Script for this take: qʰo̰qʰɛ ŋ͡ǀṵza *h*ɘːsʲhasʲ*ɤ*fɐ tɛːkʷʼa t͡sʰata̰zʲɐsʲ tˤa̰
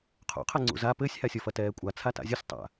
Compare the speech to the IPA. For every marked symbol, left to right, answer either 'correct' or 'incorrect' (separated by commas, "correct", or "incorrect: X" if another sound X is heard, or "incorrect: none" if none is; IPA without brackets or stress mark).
incorrect: p, incorrect: ɔ